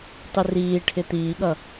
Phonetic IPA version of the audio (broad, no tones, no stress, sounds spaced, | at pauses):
tˤ ɪ r iː ʈʰ ɪ t̪ iː ɠ ʌ